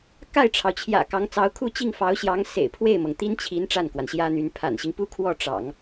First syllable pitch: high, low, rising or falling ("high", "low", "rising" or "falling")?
falling